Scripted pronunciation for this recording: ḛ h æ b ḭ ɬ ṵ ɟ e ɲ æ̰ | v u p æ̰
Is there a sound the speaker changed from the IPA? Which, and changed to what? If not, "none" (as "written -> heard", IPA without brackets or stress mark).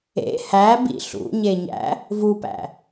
ɟ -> ɲ